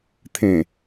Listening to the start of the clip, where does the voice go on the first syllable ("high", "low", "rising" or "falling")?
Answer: low